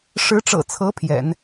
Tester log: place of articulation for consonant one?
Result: retroflex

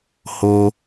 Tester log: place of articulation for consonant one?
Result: glottal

